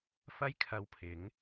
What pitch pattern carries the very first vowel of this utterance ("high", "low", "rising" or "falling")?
high